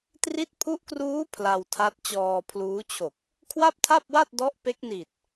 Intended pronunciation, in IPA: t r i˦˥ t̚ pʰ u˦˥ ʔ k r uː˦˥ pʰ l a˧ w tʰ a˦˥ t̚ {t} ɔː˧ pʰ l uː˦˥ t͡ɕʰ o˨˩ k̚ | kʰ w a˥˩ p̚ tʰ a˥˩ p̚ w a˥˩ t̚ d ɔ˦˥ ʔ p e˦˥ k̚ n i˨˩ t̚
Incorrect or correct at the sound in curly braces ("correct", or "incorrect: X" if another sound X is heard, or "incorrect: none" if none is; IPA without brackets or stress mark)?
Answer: incorrect: t͡ɕ